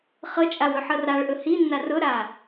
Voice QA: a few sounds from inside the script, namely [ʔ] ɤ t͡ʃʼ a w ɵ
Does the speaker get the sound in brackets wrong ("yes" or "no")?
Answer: yes